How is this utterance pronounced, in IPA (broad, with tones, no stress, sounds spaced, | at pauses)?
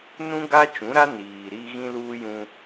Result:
n ũ˦ ɡ a˦ t͡ʃ ũ˨˦ ɾ a˦ n iː˨ ɾ i˦ ɣ ĩ˦ l uː˦ j ũ˦